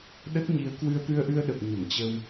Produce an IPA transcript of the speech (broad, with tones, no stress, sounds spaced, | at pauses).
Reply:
ɗ ə˦˥ t̚ ɲ i˨˦ ə̯ k w ɨ˧ ə̯ t̪ ɨ˧ ə̯ ʔ ɨ˧ ə̯ ɗ ə˨˩ p̚ ɲ ə˧˩ m t͡ɕ ə˧ w